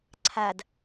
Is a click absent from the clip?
no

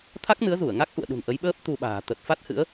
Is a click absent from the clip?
yes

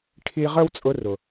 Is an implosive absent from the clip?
yes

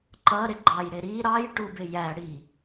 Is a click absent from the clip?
no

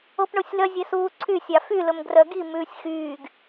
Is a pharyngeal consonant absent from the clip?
yes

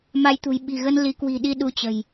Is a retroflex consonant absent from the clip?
yes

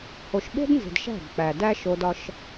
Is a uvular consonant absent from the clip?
yes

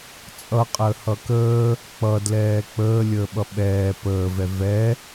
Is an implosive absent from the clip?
no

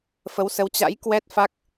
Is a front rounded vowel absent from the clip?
yes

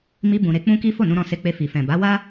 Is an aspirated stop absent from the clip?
yes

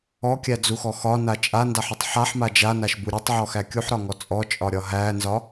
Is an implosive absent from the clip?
yes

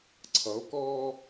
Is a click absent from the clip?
no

